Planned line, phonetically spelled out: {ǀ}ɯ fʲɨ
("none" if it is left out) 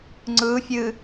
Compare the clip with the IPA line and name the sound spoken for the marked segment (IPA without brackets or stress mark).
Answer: ŋ͡ǀ